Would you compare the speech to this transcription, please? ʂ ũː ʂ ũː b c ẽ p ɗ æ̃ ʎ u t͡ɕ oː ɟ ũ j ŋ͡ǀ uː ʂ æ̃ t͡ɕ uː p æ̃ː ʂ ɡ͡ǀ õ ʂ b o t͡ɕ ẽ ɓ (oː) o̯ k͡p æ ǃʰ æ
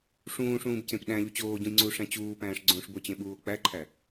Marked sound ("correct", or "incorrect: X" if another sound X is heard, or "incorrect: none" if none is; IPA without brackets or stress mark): incorrect: uː